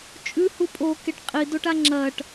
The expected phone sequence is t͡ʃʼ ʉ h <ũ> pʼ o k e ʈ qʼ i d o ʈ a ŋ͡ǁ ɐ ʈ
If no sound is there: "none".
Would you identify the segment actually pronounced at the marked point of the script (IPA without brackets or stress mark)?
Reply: u